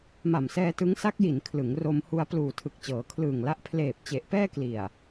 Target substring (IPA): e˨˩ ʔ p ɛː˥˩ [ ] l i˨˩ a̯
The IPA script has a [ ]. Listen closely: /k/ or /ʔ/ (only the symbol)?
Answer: k